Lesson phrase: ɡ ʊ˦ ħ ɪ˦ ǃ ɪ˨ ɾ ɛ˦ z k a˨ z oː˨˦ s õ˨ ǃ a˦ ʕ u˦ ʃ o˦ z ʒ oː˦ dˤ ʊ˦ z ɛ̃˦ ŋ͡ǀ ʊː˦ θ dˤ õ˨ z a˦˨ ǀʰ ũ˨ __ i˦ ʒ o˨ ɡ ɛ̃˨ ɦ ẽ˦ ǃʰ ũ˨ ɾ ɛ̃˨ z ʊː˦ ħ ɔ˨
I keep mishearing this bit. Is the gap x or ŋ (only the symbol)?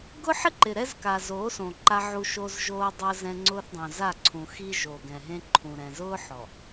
x